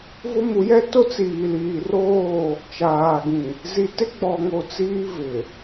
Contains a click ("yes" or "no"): no